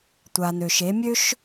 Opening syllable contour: low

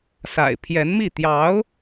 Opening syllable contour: low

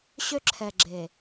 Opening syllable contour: high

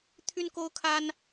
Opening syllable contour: high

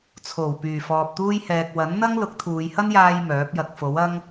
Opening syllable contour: low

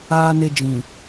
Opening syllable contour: low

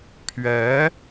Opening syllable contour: rising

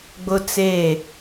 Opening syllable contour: high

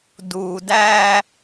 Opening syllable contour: low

